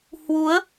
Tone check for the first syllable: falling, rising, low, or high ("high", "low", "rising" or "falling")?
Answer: rising